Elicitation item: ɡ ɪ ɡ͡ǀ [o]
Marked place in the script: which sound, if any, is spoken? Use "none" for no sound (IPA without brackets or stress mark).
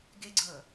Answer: ɤ